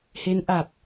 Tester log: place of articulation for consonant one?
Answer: glottal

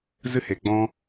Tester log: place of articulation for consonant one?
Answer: alveolar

